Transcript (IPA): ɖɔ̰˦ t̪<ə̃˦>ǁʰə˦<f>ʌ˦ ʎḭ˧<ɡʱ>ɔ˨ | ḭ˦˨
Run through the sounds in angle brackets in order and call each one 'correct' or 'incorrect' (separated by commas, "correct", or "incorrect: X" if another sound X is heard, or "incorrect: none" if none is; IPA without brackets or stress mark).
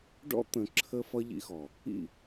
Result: incorrect: ə̃˧, correct, incorrect: x